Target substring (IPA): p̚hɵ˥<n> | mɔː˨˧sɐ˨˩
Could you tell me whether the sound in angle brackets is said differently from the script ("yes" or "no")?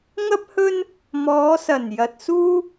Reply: no